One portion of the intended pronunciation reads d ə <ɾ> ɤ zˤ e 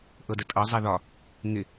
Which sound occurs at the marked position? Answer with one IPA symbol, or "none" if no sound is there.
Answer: tʼ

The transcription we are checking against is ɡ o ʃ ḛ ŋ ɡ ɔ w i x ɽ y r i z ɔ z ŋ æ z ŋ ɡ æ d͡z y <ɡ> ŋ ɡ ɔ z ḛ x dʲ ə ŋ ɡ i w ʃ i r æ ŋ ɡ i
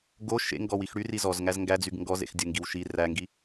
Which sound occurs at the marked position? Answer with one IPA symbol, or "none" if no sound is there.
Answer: ɡ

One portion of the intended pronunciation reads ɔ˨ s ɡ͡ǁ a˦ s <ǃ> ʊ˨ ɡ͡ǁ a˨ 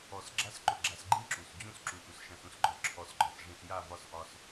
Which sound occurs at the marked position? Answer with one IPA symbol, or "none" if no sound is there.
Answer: ǃ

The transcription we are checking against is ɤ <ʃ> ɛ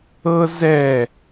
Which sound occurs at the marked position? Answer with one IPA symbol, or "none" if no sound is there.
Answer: z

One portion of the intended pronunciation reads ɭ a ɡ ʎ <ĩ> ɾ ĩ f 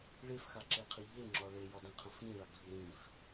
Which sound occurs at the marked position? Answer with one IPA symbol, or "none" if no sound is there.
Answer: i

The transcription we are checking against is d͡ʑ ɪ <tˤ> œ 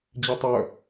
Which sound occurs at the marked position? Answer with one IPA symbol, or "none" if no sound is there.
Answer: tˤ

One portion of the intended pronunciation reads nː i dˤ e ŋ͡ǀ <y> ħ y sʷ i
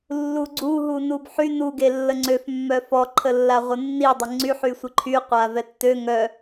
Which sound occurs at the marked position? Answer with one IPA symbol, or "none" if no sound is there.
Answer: y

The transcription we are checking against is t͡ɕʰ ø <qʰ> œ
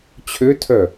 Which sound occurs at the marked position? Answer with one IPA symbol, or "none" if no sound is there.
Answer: tʰ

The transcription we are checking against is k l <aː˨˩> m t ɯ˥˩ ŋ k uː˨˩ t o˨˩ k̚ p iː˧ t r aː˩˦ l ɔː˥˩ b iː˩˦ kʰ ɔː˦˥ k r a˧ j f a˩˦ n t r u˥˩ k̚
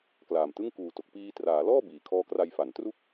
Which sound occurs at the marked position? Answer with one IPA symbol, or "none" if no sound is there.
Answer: aː˨˩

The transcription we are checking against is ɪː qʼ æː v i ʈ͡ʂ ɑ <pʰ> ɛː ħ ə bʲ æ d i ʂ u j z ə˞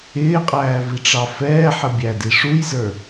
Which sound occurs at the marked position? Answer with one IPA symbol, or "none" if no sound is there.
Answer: f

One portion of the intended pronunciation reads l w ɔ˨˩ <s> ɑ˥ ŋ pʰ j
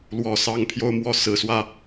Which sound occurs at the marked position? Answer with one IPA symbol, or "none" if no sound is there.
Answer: s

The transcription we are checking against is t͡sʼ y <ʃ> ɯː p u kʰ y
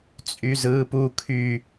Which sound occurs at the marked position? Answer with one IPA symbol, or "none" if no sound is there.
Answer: z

